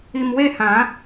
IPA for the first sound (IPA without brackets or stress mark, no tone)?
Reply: i